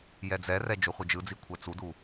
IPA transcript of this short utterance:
j ɛ d͡z ɛ r ɛ d͡ʒ o χʷ ɯ d͡ʒ ɯ d͡z i kʷʰ ɛ t͡s u d u

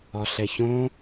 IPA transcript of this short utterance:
ɒ ɬ ɛ ç õ

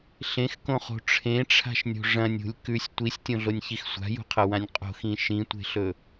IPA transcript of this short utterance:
ɬ ẽ x k õ χ o̤ ʈ͡ʂʰ ẽ ʈ͡ʂʰ a̤ ʃ nʲ o̤ ʐ ɐ̃ nʲ ṳ lʲ k ʉ sʲ tʷ i sʲ tʲ õ ɮ o nʲ ç i x sʷ a̤ j ṳ qʰ ɐ w ã nʲ qʼ o̤ x ĩ ʃ ĩ tʷ e̤ ɬ ɵ

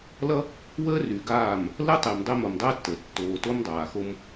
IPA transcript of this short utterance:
l ʌ˦ | w əː˦ r y˨ ɡ aː˦˨ m | l ə˦ tˤ e˨ m dˤ e˦ m o˨ m dˤ əː˦ tː ə˨ tː oː˨ t o˦ m dˤ aː˨ x o˦ m

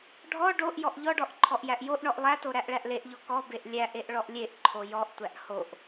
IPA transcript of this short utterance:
ɖʱ ɔ ɖ o ʔ j ɔ ʔ ʎ ɔ ɖ ɔ ʔ ǃʰ ɔ ʔ j æ ʔ j o ʔ ɳ ɔ ʔ lˠ æ t o ɾ æ ʔ ɭ æ ʔ l e ʔ ʎ ɔ k ɔ b e ʔ lʲ æ ʔ e ʔ ɭ ɔ ʔ lʲ e ʔ ǃʰ o j ɔ ʔ tʷ æ ʔ h o ʔ

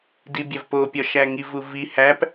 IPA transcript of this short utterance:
d i bʲ æ v p o pʲ ɒ ʃ æ ŋ i v u v i h æ p

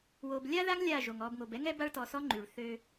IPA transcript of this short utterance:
w o˨ b lʲ a˦ ð a˦ ŋ lʲ a˦˨ ʒ o˨ ŋ ɔ˨ b ŋ o˨ b ɛ˦ ŋ ɛ˦ b a˦ ɭ t ɔ˨ s ɔ˦ ŋ͡ǃ y˨ ɭ θ ø˦

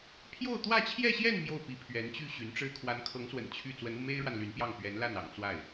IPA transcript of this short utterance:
pʰ j o˥˧ ʊ̯ t̪ w ä˥˧ t͡ɕʰ j ɛ˥˧ ɕ j ɛ˥˧ n m j o˥˩ ʊ̯ p i˧˥ pʰ ɥ ɛ˧˥ n t͡ɕ y˥˩ ɕ y˧˥ n ʈ͡ʂ ɻ̩˥ kʰ w a˧˥ n kʰ ɤ˧˥ ŋ s w ə̰˨˩ n t͡ɕʰ y˥˩ t͡s w ə˧˥ n u˧ m e˥ ɪ̯ ɻ w a˨ n l y˧˥ n p j ɑ˥˩ ŋ p ɥ ɛ˧˥ n l a˥˩ n ɑ̰˨˩ ŋ t͡s w a˥˩ ɪ̯

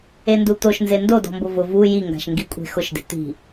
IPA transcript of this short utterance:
e n d u t̪ o ʃ n z e n d o d ɔ̤ m b ʊ v ʊ v u j i ŋ ɡ a̤ ʃ ŋ ɡ i kʷʼ e̤ x ʊ ʃ d e̤ t̪ i̤

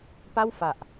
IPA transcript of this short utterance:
p a˥˩ w f a˨˩ ʔ

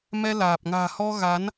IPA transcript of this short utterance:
m ɛ˧ l aː˨˩ p̚ ŋ a̤ː˨˩ h ɔ˧ ɣ a˨˦ n

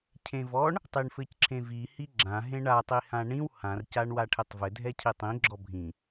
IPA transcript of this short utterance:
cʰ ẽ v ɔ ɳ | tˤ i ɳ f ɘ c ǁʰ ẽ v i h i ɡ͡ǁ ã ɦ ẽ ɳ a tˤ i h ã ɳ ĩ w h ã r c a ɳ w a ʈʰ e tˤ v ɘ dʱ ɛ cʰ i tˤ ĩ ɡ͡ǁ ɔ bʱ ĩ

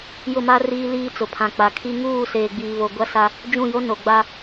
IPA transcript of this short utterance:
j ʊ˦˨ m a˦ r iː˦ l iː˦ t͡s ʊ˨ pʰ ã˨ k͡p a˨ kʰ i˦ ŋ uː˦˨ s eː˨ ɡ͡b iː˨ β o˨ ɡʷ a˦ s a˦ | d͡ʒ ũ˦˨ j o˦ n o˨ ɡ͡b a˦

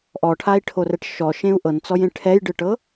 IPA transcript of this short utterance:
ʔ ɔ ʈʰ a i̯ ʈʰ o r ɛ ʈ ʃ ɔ ʃ ẽ u̯ ʔ ɤ n t͡s ɔ j ẽ ʈʰ ɛ j ɖ ɯ ʈ ɤ

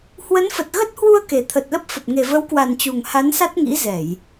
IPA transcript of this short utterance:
h w ə˨˦ n f ə˨˩ t̚ ɣ ə˦˥ t̚ h w u˧ ə̯ k e˨˩ t̪ʰ ə˨˩ t̚ l ə˦˥ p̚ f ə˨˩ p̚ ŋ e˨˩ v ə˨˦ w k w a˨˩ n t͡ɕ u˨˩ ŋ h a˨˦ n s a˦˥ t̚ ŋ ḭ˧˥ z ɛ˧˩˨ j

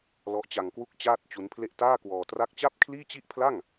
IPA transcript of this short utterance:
l ɔ˦˥ ʔ t͡ɕ a˧ ŋ k w u˥˩ k̚ t͡ɕ aː˥˩ t̚ t͡ɕ u˦˥ n pʰ l e˥˩ ʔ t aː˥˩ k w ɔː˧ t r a˥˩ k̚ t͡ɕ a˥˩ p̚ kʰ l iː˥˩ t͡ɕ i˥˩ ʔ pʰ l a˥˩ ŋ

